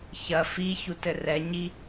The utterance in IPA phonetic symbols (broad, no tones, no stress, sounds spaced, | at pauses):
ç ɐ f i ç u t ɘ r ɛ ɲ i